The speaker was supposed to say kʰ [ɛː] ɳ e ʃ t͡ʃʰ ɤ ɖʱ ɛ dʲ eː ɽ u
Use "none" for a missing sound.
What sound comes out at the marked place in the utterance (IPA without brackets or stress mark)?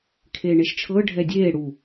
eː